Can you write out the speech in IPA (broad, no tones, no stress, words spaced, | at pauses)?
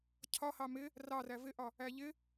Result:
cʰɒhɑ mɪ | rɑræ vɪʔɒ | æʎɪ